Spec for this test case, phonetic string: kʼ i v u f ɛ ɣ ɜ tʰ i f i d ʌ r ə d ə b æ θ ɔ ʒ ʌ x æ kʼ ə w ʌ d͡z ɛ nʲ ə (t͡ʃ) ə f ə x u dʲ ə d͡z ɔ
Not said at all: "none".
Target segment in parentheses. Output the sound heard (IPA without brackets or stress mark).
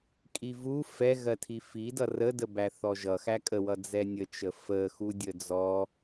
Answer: t͡ʃ